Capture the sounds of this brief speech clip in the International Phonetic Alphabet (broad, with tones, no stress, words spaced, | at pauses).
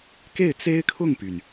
ke˥˩ɪ̯t͡se˥ɪ̯kʰʊ˥˩ŋpy˩n